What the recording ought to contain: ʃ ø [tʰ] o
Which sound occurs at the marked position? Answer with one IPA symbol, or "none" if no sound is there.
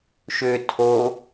tʰ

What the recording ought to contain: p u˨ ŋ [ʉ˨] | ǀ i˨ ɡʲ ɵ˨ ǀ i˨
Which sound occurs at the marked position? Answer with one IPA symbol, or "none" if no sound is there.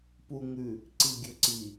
ʉ˨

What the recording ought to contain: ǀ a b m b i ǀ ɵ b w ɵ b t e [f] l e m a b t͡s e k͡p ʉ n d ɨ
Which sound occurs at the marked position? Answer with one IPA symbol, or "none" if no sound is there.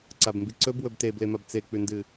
b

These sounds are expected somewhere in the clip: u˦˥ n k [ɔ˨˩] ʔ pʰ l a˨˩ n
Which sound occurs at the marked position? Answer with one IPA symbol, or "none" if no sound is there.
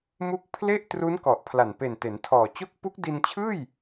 ɔ˨˩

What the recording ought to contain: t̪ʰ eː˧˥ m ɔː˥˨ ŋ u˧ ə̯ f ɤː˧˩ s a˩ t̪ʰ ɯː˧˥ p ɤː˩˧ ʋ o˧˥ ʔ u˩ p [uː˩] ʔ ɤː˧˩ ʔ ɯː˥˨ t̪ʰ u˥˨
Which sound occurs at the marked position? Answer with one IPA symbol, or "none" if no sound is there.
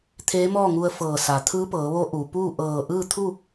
uː˥˨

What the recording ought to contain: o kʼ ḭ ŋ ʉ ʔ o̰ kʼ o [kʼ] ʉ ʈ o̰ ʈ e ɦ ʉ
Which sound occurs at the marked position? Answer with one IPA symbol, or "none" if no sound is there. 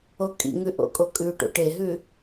kʼ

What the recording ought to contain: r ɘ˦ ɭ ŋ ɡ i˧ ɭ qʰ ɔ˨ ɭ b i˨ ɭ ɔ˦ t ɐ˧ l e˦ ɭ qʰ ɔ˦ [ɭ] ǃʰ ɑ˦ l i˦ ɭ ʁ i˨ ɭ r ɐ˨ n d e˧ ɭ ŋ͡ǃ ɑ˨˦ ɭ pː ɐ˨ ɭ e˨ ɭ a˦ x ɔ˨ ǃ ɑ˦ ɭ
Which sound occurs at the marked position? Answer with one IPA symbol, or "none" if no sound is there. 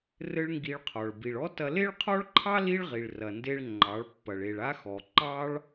ɭ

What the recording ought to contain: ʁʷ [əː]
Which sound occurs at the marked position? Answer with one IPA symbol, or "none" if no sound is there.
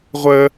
əː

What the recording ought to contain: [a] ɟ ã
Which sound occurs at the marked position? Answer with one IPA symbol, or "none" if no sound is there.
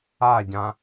a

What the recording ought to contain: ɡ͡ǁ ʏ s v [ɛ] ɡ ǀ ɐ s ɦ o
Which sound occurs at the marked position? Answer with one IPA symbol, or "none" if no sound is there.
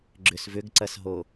ʏ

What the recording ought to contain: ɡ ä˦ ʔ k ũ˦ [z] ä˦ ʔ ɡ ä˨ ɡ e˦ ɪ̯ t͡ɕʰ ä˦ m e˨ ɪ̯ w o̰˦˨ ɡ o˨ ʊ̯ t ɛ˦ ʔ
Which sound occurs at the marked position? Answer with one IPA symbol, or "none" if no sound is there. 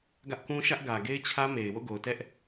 ʃ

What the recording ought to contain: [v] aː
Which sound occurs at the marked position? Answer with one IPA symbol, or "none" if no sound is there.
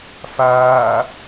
f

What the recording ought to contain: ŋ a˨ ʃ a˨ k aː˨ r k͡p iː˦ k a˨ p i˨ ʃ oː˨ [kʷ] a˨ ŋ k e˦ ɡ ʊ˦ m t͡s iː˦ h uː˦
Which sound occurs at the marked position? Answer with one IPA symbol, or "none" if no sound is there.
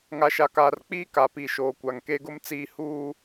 kʷ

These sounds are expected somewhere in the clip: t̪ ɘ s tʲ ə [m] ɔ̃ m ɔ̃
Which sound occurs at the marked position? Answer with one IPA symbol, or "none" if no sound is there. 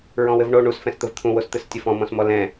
f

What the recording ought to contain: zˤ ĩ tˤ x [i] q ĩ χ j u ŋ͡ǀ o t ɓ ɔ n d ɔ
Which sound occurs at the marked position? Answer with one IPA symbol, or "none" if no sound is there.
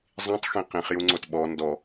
ĩ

